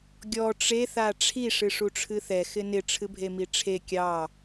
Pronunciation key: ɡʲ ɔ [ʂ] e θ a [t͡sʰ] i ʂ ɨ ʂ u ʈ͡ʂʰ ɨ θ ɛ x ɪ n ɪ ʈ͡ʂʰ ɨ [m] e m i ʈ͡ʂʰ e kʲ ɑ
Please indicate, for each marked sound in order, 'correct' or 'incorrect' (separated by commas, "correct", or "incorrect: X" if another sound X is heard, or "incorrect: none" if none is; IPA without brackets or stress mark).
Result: incorrect: ʈ͡ʂ, incorrect: ʈ͡ʂʰ, incorrect: bʱ